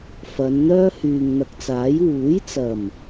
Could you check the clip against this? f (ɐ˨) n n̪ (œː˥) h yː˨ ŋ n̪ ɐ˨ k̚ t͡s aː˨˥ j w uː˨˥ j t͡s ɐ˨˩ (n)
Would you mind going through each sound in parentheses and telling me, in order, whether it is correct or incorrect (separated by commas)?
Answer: incorrect, correct, incorrect